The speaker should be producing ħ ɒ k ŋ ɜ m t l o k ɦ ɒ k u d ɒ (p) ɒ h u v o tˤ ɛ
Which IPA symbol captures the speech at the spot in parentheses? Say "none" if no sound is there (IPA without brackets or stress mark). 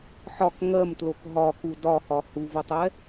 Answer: h